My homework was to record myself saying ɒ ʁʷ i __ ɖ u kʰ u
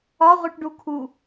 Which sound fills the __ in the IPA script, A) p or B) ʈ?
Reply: B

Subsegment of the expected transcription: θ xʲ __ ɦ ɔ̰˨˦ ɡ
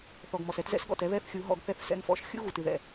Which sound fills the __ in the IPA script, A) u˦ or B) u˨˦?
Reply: B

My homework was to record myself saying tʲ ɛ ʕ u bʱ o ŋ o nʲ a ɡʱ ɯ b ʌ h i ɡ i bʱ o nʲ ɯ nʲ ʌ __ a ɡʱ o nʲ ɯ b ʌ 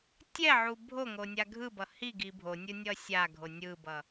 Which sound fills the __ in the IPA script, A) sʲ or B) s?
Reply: A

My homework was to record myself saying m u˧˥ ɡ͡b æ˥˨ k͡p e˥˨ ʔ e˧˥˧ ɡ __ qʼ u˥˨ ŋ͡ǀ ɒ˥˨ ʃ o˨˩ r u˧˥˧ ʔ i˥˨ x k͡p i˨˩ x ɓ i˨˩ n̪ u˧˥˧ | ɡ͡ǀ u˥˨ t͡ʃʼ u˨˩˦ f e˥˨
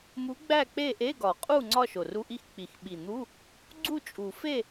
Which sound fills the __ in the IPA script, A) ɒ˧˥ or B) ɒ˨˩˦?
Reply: B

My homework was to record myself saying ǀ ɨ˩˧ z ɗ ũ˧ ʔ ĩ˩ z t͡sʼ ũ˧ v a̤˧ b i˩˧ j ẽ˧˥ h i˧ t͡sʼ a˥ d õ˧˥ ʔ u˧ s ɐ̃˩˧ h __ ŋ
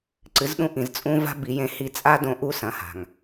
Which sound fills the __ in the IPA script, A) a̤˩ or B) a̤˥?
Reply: A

